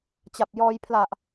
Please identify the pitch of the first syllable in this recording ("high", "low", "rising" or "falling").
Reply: low